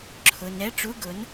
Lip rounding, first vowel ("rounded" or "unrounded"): rounded